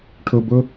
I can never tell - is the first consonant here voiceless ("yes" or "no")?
yes